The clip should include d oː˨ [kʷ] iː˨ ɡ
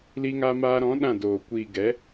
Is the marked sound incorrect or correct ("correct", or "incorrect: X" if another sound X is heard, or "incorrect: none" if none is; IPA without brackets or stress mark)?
correct